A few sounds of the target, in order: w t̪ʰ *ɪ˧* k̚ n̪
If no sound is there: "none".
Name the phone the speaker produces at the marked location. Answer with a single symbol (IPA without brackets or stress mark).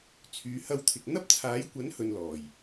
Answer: ɪ˨